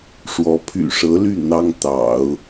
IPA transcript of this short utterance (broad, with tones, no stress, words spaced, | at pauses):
ʂwɔ˧˥ pʰy̰˨˩ʂɤ˧˥ly˥˩ n̪ɑ˥ŋt̪ɑ̰˨˩˦ʊ̯